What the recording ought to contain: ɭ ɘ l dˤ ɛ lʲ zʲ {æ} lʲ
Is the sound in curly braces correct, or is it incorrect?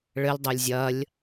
incorrect